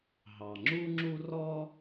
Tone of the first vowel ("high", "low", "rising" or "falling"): low